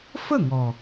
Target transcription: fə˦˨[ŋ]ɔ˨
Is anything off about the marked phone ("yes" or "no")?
no